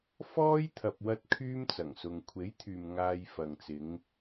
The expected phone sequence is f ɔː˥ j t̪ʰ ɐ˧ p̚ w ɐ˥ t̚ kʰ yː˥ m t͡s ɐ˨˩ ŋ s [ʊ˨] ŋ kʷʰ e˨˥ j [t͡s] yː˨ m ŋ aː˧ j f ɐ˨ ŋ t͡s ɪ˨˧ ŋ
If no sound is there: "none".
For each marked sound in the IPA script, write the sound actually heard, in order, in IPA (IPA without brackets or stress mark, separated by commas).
ʊ˨, t̪ʰ